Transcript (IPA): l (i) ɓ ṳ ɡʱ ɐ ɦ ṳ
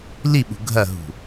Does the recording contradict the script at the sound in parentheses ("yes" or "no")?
no